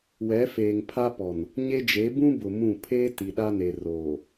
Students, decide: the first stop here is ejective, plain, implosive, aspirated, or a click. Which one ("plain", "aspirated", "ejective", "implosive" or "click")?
aspirated